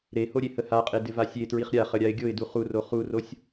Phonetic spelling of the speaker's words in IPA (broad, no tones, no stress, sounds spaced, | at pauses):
ɾ e h o ɾʲ e h ə h a qʼ e d ɪ v a sʲ e t ɹ i χ ɾʲ a χ ə ɾʲ a ɪ̯ ɡʲ o ɪ̯ d u χ u r o χ u r o sʲ